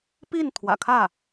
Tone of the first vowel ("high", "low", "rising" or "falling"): falling